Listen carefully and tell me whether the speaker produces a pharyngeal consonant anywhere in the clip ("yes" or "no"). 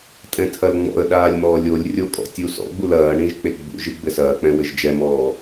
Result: no